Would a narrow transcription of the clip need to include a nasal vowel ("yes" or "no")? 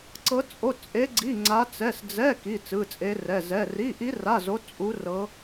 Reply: no